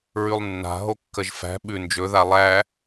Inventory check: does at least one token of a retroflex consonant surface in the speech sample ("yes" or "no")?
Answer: no